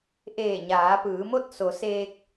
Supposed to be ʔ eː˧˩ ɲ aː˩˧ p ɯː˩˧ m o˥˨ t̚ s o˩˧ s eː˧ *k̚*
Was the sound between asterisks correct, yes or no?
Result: yes